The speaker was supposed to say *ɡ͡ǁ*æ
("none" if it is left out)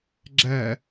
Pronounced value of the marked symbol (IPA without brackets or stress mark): ɡ͡ǁ